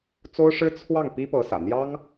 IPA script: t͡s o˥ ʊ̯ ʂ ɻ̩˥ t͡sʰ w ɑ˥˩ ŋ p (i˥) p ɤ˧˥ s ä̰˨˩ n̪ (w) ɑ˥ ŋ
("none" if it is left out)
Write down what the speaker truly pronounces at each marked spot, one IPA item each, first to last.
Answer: i˥, j

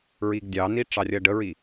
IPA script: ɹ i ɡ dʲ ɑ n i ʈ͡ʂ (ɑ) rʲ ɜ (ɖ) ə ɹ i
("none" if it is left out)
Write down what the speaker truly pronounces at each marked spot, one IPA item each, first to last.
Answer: ɑ, ɖ

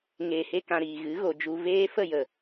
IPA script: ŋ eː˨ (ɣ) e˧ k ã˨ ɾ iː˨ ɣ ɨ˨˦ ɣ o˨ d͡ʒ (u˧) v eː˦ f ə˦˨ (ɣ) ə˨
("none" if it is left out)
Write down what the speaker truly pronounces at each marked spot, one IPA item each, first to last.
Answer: h, u˧, j

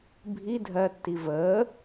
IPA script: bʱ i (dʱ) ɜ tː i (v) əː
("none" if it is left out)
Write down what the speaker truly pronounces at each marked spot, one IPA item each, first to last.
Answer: dʱ, v

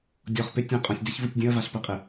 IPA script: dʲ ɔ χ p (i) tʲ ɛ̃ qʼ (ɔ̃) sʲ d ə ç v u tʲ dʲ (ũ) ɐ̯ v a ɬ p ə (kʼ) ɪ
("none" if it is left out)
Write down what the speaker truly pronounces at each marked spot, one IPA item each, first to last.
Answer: ɪ, ɔ̃, ũ, qʼ

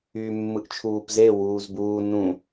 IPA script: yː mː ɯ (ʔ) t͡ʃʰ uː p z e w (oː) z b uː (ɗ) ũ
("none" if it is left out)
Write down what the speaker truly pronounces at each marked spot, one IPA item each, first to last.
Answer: ʔ, uː, n

